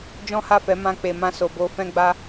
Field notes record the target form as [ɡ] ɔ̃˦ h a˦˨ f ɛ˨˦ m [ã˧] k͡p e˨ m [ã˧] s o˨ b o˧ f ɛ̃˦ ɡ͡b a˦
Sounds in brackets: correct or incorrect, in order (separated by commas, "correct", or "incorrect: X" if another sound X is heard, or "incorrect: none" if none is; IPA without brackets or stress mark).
incorrect: d͡ʒ, correct, correct